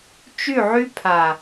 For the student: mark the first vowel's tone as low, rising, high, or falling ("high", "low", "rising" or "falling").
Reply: falling